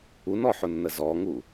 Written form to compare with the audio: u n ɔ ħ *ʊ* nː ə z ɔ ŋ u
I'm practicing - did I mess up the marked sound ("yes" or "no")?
no